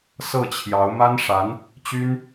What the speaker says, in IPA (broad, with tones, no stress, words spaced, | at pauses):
sɤ˥˩t͡ɕʰjɑ˧˥ʊ̯ ma˥nʂa˧˥n | t͡ɕy˥n